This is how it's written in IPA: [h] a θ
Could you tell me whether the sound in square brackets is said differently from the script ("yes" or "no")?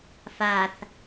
yes